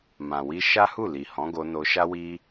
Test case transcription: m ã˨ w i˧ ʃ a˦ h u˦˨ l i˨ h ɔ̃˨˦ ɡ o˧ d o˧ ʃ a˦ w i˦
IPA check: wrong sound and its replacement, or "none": d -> n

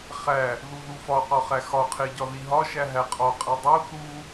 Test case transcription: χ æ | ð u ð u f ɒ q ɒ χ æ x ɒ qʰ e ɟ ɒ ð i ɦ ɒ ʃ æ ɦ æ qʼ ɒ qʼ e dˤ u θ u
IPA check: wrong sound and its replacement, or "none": none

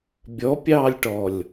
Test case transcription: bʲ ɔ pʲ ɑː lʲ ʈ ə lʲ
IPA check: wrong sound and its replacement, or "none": ə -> ɔ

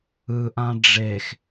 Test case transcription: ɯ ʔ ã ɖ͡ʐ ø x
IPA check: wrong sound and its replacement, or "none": ø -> e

